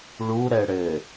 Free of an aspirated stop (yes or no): yes